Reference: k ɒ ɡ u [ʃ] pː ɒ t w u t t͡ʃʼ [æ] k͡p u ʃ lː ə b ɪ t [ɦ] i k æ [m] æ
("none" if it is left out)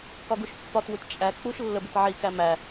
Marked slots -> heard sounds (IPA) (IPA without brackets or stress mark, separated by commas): ʃ, æ, ʕ, m